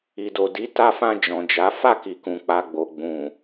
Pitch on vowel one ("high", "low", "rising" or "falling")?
low